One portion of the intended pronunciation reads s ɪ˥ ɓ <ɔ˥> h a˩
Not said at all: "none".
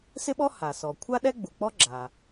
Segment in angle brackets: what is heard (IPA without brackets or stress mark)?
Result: ɔ˥